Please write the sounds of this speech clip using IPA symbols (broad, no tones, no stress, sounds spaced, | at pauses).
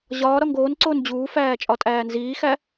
ʑ ɒː ɾ ɒ ŋ ɡ oː n ǀ oː n d͡ʑ uː f æː t͡ʃʼ ɒ tʼ æː n z iː x æ